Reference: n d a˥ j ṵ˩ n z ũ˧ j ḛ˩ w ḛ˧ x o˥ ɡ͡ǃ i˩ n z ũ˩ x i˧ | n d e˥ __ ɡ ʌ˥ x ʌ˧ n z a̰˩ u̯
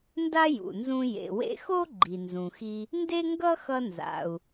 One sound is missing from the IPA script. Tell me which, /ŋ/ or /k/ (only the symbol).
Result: ŋ